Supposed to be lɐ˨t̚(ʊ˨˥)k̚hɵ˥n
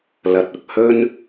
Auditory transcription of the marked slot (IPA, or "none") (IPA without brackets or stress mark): ʊ˨